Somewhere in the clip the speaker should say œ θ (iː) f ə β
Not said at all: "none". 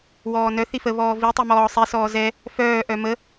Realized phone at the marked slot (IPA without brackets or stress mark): i